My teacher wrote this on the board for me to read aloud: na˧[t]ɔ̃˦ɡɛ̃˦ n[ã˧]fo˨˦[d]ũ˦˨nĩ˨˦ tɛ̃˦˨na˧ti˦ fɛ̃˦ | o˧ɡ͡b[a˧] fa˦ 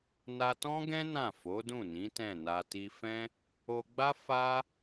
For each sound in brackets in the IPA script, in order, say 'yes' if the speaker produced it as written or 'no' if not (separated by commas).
yes, no, yes, no